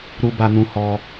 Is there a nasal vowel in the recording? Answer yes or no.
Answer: yes